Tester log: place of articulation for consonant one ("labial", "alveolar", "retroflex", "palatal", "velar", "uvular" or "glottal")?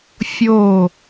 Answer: labial